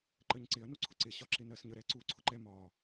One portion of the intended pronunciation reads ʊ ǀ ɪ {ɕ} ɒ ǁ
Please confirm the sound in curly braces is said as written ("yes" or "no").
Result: yes